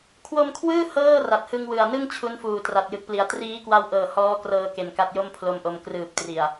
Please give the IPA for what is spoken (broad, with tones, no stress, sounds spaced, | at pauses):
kʰ w o˧ m kʰ w ɯː˥˩ h ɤː˥˩ r a˨˩ t̚ h ɯ˧ ŋ w ɯ˨˩ a̯ n ɯ˥˩ ŋ t͡ɕʰ u˦˥ n f uː˨˩ t r a˨˩ t̚ j ɯ˨˩ k̚ p l i˩˦ a̯ t r iː˦˥ k w a˧ w ʔ ɤː˨˩ h ɔː˦˥ k r ɤː˧ k e˨˩ n k a˦˥ t̚ j o˥˩ m pʰ l o˧ m ʔ o˧ m k r ɯː˨˩ p̚ t r i˨˩ a̯